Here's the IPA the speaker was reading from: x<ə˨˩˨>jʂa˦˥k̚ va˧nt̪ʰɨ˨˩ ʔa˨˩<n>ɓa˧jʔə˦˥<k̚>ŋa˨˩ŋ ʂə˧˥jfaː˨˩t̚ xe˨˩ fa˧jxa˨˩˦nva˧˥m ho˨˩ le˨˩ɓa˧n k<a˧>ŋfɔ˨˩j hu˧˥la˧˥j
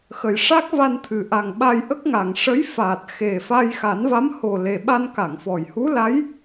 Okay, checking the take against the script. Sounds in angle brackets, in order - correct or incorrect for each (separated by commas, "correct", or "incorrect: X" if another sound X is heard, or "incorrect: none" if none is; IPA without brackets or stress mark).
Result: incorrect: ə˨˩, incorrect: ŋ, correct, incorrect: a˨˩˨